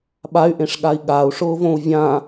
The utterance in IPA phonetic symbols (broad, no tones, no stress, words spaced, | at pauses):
ɓay̯ʔẽʂɠai̯ ɠau̯ʂʊːvõu̯ vʲã